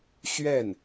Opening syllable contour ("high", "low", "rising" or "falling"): falling